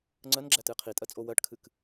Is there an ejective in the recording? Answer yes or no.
yes